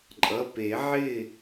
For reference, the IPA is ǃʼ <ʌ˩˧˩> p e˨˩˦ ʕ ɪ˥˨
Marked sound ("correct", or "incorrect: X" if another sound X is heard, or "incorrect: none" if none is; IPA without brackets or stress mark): correct